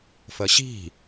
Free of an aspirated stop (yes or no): yes